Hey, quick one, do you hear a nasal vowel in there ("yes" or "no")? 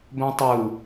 yes